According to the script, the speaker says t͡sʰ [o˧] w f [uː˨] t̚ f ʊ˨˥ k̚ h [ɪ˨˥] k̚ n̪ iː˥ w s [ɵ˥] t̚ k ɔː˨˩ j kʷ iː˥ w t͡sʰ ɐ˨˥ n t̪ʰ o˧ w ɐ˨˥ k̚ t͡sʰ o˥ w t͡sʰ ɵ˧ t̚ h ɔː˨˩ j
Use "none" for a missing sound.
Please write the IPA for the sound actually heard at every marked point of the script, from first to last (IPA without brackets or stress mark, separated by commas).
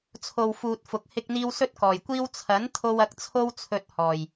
o˨, uː˨, ɪ˥, ɵ˥